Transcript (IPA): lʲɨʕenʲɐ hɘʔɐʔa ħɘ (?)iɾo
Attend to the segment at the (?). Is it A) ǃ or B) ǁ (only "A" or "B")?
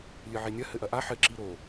B